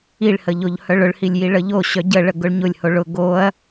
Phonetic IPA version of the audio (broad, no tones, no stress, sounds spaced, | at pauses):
i ɭ h ə ʎ o ʎ h œ ɭ ʊ ɭ h i lʲ j i ɭ ə ʎ o ɕ œ ɟ ə ɭ ə ɡ ʊ ɭ ɲ ʊ lʲ h o ɭ ʊ ɡ o ɐ̯